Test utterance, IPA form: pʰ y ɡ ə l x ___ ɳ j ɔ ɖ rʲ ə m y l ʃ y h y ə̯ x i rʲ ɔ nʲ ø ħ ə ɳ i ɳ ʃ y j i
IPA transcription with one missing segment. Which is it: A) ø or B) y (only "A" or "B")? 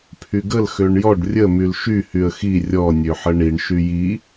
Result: A